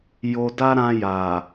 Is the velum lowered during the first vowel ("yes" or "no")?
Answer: no